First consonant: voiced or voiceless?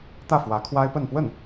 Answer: voiceless